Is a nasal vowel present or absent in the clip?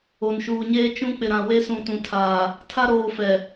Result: present